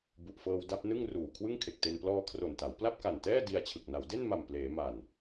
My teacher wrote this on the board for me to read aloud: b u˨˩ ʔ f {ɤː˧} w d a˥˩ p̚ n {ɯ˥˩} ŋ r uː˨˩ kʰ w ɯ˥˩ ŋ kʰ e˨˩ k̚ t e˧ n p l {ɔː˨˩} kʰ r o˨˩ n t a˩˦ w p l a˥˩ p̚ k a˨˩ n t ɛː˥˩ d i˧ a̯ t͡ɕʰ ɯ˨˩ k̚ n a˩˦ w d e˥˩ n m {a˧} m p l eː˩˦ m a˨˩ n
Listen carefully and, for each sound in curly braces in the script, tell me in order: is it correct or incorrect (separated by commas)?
correct, correct, incorrect, incorrect